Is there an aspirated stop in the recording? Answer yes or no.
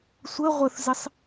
no